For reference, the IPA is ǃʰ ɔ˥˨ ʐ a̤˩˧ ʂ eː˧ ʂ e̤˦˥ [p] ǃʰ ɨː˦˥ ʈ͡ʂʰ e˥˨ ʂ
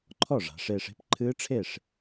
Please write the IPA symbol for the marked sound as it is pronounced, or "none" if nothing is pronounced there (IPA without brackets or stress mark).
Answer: p